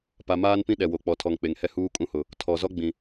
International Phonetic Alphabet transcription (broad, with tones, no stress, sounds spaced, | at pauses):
p a˨ m aː˦ n p ĩ˦ ɗ ɛ˨ w o˨ k͡p ɔ˨ tʰ ɔ˨ ŋ k͡p e˨ ŋ h ɛ˦ h uː˦ kʼ ũ˦ h ʊ˨ | tʰ ɔ˨ z ɔ˦ ɡ͡b ĩ˨